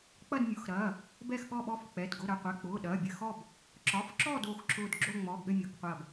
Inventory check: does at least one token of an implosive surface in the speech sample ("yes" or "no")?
yes